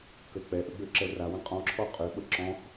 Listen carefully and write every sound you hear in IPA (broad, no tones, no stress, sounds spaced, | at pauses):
k ə k͡p ɛ ʔ ə ɡ͡b ø ǁ ɛ r a w ə̃ qʼ ɔ̃ ǁʰ ɔ qʼ ø ɓ ə ǁ ɔ̃ x